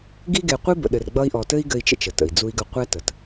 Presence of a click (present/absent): absent